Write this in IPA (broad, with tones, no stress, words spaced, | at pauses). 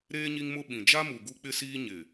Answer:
ɾeː˦ ɲi˦ŋmʊ˦ ɓĩ˨ d͡ʒa˦mu˨ ɡu˦k͡pɪ˦siː˦ ɲɪ˨